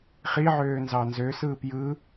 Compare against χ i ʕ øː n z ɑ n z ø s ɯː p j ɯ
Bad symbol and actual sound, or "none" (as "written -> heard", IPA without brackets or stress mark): none